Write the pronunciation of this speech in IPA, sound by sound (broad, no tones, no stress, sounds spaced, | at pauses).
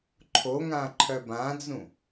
ǃʰ o ŋ ã ǃʰ œ b ã d͡z ũ